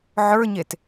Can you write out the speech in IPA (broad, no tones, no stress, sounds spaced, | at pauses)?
ʕ ə˞ ɲ e t